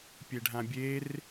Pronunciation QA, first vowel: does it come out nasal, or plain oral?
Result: oral